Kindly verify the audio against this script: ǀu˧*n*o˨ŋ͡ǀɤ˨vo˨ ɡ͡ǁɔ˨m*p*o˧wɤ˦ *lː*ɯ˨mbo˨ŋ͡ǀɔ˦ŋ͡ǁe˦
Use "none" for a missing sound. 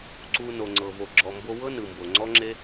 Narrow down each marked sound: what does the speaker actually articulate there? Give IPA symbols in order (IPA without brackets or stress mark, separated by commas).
n, b, n